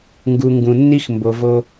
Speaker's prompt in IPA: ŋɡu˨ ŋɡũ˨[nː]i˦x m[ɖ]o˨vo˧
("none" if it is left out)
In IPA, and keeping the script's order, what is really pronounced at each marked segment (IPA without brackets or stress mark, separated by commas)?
nː, b